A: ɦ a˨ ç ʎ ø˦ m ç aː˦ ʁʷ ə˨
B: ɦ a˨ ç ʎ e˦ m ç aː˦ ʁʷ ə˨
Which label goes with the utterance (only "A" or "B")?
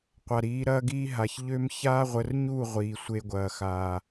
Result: A